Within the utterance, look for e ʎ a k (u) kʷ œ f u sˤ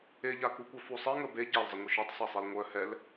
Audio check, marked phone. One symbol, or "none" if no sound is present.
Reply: u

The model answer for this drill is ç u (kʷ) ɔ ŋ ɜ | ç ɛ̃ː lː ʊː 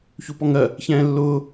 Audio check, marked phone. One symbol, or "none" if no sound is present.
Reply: p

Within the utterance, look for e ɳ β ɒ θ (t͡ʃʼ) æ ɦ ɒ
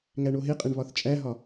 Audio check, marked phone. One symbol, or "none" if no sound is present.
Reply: t͡ʃʼ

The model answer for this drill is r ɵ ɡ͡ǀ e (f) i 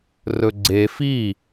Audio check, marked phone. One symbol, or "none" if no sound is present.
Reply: f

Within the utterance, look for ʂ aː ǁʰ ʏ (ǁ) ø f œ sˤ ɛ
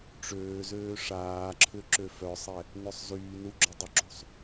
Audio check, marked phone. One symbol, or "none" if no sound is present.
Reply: ǁ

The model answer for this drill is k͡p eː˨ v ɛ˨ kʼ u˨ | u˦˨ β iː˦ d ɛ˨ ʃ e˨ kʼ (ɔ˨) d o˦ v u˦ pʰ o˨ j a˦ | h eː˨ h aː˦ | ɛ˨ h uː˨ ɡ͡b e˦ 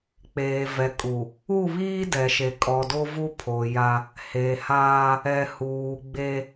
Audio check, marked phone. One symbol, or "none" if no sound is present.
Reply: ɔ˨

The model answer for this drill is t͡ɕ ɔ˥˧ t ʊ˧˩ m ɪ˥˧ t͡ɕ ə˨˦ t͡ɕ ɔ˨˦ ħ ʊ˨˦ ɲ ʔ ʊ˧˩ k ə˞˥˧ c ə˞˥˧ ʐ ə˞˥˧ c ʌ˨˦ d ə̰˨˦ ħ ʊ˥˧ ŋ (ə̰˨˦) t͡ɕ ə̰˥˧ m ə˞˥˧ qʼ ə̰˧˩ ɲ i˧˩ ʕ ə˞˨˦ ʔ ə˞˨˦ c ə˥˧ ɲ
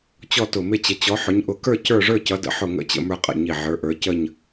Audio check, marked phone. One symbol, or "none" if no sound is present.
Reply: ə̰˥˧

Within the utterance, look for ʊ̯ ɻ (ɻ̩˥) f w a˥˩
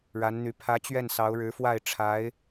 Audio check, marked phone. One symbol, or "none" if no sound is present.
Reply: ɻ̩˧˥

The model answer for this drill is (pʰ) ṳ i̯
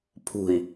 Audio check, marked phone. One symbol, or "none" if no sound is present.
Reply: pʰ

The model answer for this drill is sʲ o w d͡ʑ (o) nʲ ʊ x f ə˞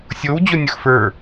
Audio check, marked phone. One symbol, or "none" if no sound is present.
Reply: o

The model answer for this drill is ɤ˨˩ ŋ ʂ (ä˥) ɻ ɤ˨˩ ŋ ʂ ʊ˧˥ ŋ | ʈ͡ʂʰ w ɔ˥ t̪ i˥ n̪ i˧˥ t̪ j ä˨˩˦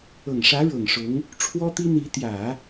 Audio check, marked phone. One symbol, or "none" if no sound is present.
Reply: ä˧˥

